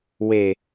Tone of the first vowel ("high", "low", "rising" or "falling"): low